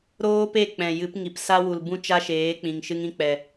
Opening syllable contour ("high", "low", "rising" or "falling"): high